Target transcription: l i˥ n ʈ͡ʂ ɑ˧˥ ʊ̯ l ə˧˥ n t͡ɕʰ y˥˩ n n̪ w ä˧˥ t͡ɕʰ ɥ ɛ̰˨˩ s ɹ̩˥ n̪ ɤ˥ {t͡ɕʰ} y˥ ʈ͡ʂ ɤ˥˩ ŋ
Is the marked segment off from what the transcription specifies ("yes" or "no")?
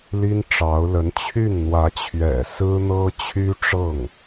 no